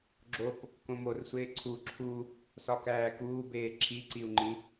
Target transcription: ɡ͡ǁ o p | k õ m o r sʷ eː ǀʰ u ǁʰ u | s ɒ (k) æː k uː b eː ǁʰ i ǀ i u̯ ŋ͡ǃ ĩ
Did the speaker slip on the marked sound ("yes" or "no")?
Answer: no